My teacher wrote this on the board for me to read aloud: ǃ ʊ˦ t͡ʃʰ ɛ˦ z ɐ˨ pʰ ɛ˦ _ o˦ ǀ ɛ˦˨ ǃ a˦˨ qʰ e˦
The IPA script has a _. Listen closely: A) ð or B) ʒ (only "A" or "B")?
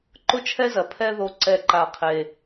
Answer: A